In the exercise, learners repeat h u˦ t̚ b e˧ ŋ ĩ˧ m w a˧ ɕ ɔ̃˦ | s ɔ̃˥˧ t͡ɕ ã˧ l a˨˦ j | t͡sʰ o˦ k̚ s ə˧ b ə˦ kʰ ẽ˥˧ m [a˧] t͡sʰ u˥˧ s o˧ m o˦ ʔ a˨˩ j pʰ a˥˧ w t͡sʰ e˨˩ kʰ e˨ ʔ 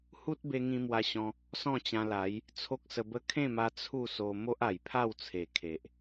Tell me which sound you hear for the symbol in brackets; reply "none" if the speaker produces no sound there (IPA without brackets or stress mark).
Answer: a˧